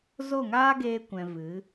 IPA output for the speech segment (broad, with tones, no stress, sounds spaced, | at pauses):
z o˦˨ ŋ aː˦ ɡ eː˧ kʷ ɛ̃˨ v ɨ˨˦